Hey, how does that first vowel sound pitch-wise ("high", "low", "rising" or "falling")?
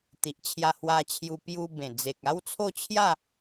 low